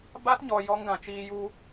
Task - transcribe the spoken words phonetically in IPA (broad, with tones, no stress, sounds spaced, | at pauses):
b a˦ t ɲ ɔ˧ j ɔ˦ ŋ ɡ ã˧ t͡ʃ iː˧ j u˧